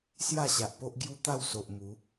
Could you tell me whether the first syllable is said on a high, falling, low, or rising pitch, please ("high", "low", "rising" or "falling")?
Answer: falling